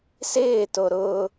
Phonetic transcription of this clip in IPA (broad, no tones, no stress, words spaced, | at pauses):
sɪːto ɾʊ